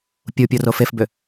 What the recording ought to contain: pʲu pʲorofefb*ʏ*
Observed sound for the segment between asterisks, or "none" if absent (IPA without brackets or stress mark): ʏ